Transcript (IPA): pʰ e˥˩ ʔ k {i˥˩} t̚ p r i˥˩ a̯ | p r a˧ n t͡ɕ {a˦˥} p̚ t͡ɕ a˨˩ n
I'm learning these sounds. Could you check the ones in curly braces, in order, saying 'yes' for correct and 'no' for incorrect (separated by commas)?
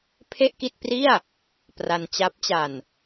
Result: yes, yes